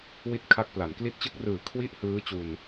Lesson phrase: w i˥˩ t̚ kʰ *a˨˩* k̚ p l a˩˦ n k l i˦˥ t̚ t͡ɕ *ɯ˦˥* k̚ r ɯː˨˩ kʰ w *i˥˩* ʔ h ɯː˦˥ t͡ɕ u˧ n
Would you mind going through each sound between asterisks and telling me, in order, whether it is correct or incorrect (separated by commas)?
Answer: incorrect, correct, correct